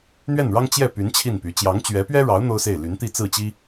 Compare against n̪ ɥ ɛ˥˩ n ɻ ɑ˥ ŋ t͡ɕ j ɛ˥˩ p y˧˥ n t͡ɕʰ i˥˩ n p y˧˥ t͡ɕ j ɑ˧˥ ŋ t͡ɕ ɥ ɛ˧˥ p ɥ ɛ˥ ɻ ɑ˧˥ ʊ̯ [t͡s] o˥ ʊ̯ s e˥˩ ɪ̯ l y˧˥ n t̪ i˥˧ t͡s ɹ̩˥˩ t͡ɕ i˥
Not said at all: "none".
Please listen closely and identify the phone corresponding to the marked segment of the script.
n̪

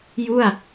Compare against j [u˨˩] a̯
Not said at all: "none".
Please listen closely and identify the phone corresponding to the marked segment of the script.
u˥˩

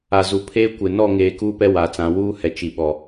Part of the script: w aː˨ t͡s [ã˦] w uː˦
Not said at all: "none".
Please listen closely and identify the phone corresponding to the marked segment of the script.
ã˨˦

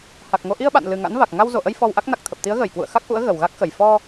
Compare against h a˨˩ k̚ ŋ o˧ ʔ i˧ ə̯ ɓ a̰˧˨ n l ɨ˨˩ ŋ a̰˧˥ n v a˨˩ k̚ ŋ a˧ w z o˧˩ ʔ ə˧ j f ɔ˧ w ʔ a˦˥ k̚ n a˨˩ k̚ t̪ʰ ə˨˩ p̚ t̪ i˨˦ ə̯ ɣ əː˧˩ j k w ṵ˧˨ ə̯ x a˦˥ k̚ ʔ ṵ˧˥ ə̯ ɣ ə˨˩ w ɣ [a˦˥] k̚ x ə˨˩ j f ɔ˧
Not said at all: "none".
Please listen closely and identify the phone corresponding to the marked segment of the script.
a˦˥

